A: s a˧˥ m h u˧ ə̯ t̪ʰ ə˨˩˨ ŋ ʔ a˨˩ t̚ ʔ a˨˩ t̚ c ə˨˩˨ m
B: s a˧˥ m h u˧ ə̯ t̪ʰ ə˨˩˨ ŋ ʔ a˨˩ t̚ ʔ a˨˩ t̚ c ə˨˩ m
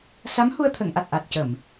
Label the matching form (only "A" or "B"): A